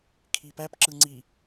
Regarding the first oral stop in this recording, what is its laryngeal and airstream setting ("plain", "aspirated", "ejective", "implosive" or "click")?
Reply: aspirated